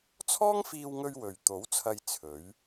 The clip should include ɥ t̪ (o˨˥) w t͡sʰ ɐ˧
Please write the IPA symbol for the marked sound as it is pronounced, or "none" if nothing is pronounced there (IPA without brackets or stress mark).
o˨˥